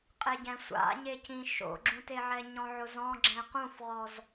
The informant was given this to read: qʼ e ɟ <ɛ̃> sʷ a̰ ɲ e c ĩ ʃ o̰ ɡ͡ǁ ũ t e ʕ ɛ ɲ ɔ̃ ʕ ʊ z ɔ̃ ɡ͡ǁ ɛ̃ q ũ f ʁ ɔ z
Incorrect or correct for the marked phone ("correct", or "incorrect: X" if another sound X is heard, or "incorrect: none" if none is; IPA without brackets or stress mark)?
correct